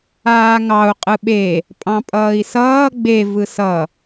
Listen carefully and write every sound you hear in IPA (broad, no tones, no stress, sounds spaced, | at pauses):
aː ŋ ɑ u̯ qʼ ɯ ɓ e | pʼ ɑ̃ pʼ ʌː i̯ s ʌː ɡ͡b e v ɯ s ʌ